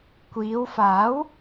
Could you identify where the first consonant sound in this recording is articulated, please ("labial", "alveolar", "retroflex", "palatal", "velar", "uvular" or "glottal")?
velar